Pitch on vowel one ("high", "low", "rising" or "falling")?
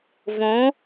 rising